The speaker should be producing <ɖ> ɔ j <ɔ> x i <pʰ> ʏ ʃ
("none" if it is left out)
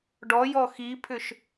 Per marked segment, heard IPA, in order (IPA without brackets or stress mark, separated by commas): ɖ, ɔ, pʰ